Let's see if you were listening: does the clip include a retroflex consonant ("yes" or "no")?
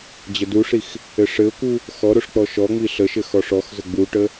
yes